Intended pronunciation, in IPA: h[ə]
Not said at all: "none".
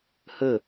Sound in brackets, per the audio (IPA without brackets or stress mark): ə